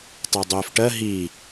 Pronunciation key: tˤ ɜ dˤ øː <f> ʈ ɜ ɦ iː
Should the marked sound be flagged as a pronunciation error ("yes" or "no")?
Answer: no